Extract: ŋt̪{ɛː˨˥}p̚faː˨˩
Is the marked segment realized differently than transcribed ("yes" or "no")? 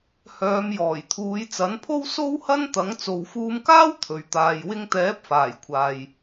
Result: no